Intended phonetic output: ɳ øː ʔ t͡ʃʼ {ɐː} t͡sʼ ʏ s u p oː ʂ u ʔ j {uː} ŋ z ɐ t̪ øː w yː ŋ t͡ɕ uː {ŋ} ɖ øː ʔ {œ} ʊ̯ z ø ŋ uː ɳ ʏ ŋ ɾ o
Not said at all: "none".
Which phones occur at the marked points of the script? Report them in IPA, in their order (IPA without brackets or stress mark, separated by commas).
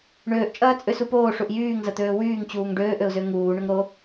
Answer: ɐː, yː, ŋ, ø